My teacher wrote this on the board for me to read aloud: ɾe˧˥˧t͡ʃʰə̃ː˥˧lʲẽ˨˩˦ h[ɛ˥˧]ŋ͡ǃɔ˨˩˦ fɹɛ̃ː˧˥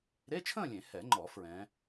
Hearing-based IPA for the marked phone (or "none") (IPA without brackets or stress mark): ɛ˨˩˦